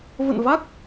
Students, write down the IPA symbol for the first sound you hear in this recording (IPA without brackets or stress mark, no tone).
v